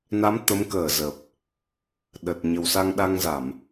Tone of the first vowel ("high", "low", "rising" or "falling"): rising